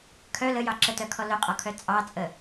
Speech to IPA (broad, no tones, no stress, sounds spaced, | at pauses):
kʰ œ l ə j ɑ ǁ ə t œ kʰ ɔ l œ qʼ ɔ kʰ œ t͡sʼ ɑ t͡sʼ ə